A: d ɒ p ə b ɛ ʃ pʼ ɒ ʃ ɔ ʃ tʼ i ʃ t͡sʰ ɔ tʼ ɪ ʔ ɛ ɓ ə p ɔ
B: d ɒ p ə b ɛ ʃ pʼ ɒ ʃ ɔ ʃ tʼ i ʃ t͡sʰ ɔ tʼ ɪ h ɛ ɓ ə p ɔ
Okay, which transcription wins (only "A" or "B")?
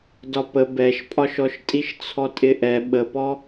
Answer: A